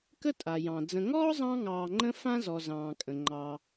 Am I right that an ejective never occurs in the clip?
no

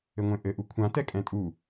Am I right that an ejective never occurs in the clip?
no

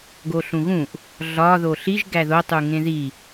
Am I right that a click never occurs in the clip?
yes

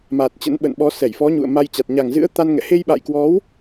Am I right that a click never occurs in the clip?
yes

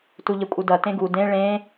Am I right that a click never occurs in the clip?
yes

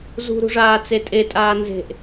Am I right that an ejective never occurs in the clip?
no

